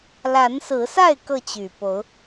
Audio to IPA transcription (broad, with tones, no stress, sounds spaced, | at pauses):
l a˨˦ n s ɹ̩˨˦ s a˥˨ ɪ̯ k ɤ˥˨ t͡ɕ y˨˩ p o˨˦ ʊ̯